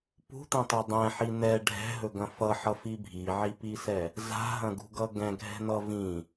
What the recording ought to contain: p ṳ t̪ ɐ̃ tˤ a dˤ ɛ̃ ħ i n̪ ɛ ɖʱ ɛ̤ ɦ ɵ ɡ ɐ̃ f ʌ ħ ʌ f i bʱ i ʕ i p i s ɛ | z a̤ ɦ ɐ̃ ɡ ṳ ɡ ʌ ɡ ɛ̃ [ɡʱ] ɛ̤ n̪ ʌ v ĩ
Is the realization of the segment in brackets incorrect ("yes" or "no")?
no